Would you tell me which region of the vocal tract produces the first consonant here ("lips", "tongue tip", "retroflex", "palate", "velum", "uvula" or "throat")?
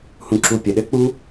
throat